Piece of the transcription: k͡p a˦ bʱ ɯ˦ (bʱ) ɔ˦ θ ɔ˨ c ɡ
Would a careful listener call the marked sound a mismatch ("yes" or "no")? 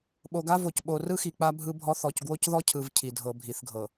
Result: no